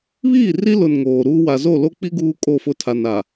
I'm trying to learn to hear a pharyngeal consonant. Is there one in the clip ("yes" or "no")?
no